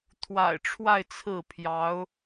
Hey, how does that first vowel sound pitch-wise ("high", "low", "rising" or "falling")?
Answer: low